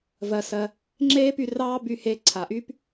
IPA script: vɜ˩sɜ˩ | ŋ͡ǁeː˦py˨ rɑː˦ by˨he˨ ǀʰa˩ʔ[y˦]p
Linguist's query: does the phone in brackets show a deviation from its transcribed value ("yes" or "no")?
yes